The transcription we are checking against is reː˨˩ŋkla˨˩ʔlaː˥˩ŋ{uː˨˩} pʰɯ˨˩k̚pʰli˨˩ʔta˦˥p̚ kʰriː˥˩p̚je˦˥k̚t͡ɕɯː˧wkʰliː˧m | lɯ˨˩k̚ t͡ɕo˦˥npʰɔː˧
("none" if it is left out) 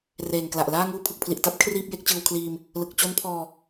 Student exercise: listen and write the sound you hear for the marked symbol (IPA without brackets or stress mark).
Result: uː˥˩